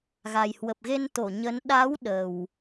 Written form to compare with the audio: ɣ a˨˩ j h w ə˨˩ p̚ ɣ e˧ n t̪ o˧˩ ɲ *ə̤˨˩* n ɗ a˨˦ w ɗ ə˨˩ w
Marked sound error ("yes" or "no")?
yes